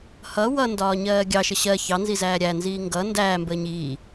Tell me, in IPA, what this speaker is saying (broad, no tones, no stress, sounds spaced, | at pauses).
h ʌ w ʌ n d ɒː ɲ ɜː ɡʲ ɑ ʃ ə ɕ ɜ ç ɑ n z i z æː ɾʲ æ n z iː ŋ ɡ ʌ n d æː m b əː ɲ iː